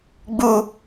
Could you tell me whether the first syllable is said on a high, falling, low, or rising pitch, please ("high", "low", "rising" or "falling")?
high